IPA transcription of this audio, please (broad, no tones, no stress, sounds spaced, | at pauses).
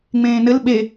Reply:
ŋ͡m ẽː n ɘ l ɓ e